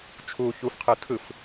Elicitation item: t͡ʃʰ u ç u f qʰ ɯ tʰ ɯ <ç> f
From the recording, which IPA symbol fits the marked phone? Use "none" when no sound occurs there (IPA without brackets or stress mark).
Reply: none